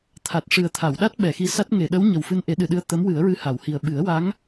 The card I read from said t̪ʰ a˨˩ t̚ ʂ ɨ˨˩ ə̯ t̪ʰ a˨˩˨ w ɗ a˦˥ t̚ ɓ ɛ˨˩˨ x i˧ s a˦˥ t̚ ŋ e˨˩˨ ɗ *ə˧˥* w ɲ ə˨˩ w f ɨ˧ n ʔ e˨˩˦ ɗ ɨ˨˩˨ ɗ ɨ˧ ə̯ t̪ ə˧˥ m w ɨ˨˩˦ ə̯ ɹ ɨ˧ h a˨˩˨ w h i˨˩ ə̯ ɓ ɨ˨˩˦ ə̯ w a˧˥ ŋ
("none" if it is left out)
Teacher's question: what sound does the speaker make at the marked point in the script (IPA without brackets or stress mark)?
ə˧˥